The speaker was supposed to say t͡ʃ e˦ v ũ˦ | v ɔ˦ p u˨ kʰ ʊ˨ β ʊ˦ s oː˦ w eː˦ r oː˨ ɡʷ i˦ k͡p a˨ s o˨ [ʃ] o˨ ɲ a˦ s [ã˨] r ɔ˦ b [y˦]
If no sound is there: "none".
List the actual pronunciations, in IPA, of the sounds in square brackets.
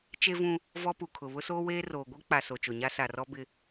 t͡ʃ, a˨, ɪ˦

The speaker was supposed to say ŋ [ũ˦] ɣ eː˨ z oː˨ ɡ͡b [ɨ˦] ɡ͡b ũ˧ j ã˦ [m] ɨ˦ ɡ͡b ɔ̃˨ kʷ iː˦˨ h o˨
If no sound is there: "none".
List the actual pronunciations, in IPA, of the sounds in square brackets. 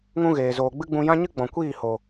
ũ˦, ɨ˦, ɲ

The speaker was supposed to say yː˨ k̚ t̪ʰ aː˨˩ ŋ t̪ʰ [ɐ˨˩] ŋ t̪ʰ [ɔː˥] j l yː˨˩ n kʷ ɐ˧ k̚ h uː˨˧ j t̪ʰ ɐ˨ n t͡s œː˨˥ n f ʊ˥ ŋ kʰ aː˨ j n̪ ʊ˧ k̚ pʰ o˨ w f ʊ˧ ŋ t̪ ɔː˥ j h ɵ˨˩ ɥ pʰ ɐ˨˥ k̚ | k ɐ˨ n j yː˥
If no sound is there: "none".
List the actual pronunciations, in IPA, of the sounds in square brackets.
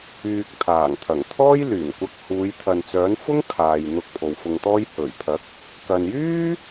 ɐ˨˩, ɔː˥

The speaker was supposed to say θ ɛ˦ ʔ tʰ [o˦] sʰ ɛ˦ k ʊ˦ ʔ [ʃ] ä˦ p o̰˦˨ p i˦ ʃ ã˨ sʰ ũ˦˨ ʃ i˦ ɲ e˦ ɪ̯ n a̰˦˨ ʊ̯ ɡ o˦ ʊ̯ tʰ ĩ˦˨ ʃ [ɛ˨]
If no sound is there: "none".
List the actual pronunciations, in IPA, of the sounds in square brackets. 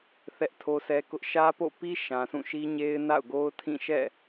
o˦, ʃ, ɛ̰˦˨

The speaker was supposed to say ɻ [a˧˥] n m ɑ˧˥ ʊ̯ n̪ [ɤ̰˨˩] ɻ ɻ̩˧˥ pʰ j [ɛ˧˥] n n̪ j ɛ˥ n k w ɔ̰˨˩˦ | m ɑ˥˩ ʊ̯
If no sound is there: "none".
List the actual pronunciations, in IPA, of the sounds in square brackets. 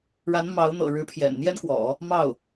a˧˥, ɤ̰˨˩, ɛ̰˨˩

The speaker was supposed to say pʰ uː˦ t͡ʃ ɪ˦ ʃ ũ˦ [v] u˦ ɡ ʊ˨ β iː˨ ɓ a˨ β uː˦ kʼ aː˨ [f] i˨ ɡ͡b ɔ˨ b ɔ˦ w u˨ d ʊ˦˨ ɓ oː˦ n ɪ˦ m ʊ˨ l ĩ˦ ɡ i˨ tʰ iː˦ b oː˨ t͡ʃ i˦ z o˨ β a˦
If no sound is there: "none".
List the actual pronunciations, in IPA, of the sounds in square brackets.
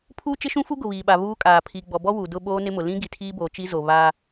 f, pʰ

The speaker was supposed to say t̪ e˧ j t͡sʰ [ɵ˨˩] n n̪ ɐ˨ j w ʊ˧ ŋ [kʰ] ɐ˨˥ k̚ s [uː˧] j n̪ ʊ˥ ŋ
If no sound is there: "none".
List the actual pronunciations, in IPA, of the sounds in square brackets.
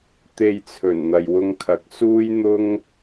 ɵ˨˩, kʰ, uː˥

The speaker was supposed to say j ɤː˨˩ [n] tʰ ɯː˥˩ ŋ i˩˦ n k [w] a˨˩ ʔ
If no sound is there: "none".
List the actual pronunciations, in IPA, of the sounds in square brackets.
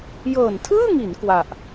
n, w

